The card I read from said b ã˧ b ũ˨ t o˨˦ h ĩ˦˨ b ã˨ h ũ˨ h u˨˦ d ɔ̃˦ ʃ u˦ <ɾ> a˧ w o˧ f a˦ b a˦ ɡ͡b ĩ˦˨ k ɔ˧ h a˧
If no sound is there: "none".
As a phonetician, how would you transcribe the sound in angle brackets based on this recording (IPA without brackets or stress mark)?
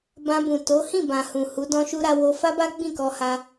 ɾ